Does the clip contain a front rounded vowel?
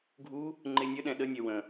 yes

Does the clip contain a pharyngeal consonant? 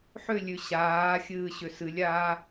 yes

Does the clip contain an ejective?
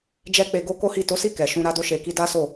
no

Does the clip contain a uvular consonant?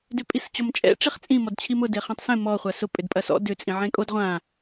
yes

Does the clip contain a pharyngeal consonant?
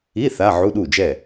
yes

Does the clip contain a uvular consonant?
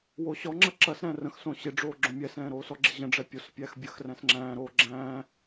no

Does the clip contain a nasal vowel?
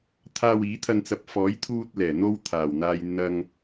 no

